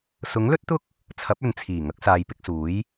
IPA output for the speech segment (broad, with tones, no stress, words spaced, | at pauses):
sʊ˨˥ŋlɵ˥t̚t̪ʊ˥k̚ | t͡sʰɐ˨˥p̚ɵ˨nt͡sʰiː˨˩ ŋɐ˨˥k̚saː˨jpɪ˧k̚suː˨˥j